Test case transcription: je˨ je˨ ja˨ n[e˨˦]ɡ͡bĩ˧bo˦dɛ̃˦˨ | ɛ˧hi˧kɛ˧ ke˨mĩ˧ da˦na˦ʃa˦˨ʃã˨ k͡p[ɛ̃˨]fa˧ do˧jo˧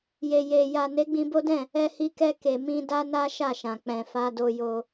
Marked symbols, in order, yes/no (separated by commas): yes, yes